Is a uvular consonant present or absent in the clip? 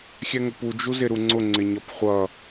present